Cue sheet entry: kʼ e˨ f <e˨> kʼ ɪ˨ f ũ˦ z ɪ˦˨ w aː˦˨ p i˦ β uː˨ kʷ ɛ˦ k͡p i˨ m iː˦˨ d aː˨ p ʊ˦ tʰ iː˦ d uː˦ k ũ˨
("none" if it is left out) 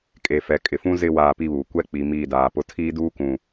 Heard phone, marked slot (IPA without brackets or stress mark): ɛ˨